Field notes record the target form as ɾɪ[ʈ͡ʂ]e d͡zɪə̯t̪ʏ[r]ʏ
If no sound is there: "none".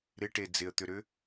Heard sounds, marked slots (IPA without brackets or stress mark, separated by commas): ʈ, ɾ